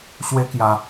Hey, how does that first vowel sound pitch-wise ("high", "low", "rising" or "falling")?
high